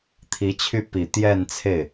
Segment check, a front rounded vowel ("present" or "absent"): present